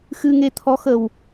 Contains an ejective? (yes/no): no